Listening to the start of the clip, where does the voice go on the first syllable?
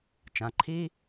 low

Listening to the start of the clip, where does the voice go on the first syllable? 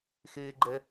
high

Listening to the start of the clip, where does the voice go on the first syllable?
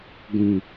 low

